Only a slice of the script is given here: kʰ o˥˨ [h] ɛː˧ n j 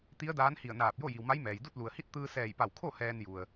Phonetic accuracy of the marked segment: correct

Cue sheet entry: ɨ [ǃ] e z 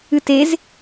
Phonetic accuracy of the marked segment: incorrect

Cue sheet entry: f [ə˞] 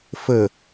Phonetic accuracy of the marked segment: incorrect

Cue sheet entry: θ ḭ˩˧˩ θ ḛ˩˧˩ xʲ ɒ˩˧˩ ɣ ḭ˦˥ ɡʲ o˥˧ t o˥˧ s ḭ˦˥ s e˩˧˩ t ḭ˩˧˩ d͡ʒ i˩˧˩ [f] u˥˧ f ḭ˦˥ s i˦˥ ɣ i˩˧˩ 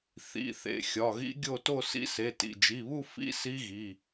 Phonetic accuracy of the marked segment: incorrect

